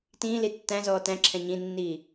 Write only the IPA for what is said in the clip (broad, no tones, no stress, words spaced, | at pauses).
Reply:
tĩːli tːæ̃zɔː tæ̃ǁʰɛ̃ ɲĩnːiː